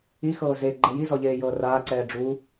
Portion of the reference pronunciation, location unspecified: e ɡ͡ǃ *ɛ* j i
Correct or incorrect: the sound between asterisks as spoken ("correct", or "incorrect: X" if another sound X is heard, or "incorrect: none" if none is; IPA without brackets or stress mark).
correct